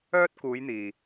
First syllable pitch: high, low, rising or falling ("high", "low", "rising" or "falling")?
high